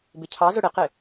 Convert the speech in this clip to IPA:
bɪcʰɑzʊ ɽɪqɪ

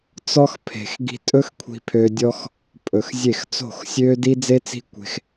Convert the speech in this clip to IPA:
t͡sɔ˦xpʰe̤˨x ɡi̤˧tʼɵ˦x kʷʰi̤˧pʰø˧dʲɔ˦x | pʼɵ˨xzʲe˦˨x t͡so̤˦˨xsʲøː˦ di˦d͡ze˦t͡si̤˦ kʷe̤˧x

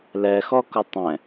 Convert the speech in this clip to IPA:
lɛxɔ kʊtˤɛ̃

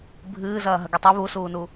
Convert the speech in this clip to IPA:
bʱɨːzɐː ɦɐɡitˤɨ βusuːnu

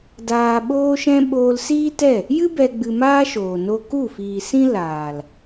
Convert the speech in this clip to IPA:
daː˧ ɓoː˧ʃɛ̃˧ ɓoː˧lsiː˦tɛ˦˨ | jɨ˦ bɛ˧ ɡ͡bɨ˧maː˦ʃoː˨ no˧ ku˦˨fiː˨sĩ˦ laː˨l

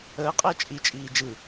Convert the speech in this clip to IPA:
əːqʼəː t͡ʃʼit͡ʃʼiː d͡ʒɯ

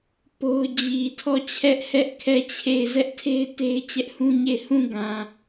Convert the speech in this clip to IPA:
po˦ʊ̯ d͡ʑi˨ tʰɔ˦˨t͡ɕʰɛ˦ʔhɛ˦ʔ kʰɛ˦˨t͡ɕʰe˦˨ɪ̯ zɛ˦ʔtʰe˦ɪ̯ te˦ɪ̯t͡ɕɛ˦ʔhũ˦ɲe˦˨ɪ̯ hũ˦˨ɡã˨

